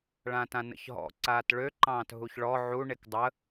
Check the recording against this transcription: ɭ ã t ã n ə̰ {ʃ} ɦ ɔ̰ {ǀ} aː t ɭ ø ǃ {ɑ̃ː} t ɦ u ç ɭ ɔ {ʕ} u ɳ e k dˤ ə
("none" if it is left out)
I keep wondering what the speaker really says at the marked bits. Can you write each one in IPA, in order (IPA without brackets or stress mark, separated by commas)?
ç, ǀ, ɑ̃ː, ʕ